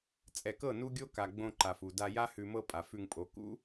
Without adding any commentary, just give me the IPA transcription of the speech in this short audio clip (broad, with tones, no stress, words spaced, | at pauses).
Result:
t͡sʼɛ˨kɤ˦˨ nu˦ɡʲo˦ ka˨ɡ͡bõ˧ ǃa˨f u˨da˧ja˦ hʉ˨mɤ˧ pʼa˨fʉ˧ŋpʼo˨˦ kṵ˦